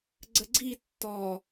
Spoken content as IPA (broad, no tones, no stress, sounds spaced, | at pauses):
ɡ͡ǀ ə ɡ͡ǀ i tː ɔ